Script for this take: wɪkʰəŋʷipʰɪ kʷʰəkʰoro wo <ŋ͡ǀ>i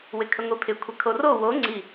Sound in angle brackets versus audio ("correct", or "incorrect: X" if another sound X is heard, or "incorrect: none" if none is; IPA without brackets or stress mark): correct